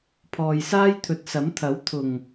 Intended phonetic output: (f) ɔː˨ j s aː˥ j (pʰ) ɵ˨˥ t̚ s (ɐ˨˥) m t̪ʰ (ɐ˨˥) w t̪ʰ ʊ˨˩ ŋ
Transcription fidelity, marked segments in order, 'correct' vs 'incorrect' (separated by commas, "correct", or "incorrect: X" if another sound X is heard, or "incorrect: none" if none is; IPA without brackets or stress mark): incorrect: pʰ, incorrect: t̪ʰ, correct, correct